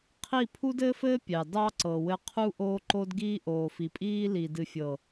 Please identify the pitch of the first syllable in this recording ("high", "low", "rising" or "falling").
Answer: falling